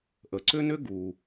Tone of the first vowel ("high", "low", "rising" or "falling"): low